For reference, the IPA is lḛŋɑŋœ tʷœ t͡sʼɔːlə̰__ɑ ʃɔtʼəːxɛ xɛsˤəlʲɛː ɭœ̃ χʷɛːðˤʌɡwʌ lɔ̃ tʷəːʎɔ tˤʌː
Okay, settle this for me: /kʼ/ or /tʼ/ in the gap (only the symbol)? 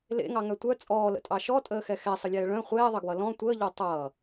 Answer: tʼ